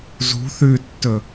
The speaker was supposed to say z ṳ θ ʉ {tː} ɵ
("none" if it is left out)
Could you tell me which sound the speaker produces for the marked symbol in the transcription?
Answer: tː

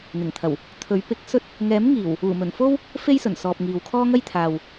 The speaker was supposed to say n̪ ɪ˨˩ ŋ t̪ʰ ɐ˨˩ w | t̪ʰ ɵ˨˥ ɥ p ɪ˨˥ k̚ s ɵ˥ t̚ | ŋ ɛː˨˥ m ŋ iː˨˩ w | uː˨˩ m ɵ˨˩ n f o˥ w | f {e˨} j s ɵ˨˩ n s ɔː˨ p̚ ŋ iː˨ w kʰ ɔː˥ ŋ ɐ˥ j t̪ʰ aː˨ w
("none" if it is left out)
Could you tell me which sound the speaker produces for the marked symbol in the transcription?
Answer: e˥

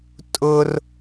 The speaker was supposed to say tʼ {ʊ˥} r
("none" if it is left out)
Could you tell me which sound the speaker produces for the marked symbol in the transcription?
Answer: ʊ˥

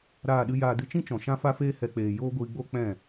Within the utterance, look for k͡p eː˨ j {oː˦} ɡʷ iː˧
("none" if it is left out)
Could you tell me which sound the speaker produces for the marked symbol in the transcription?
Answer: oː˦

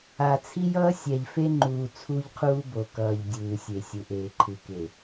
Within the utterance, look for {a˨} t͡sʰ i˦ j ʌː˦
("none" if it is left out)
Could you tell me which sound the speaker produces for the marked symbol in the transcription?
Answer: a˨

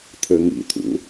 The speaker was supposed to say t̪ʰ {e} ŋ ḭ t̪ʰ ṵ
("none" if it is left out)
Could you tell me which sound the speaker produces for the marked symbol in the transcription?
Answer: ɘ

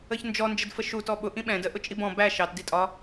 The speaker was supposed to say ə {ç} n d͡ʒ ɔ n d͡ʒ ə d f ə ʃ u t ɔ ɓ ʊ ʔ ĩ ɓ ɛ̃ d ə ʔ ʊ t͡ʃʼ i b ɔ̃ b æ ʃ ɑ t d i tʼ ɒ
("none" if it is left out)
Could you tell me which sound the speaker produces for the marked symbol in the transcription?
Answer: ç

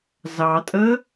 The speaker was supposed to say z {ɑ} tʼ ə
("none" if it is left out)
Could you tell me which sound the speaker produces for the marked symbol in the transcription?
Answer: ɑ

